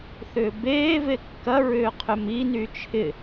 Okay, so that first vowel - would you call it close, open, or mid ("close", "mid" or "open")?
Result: close